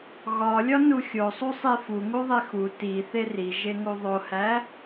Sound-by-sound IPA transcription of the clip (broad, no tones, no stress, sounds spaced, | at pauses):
ɣ ɒ lʲ ɒ n u xʲ o sˤ u sˤ i f u ŋ u ðˤ i x u t i θ e r i ʒ e ŋ u ðˤ o h æ